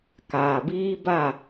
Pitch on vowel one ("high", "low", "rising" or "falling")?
low